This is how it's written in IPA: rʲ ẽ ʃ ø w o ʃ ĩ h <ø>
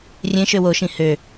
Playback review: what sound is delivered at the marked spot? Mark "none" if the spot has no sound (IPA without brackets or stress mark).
ø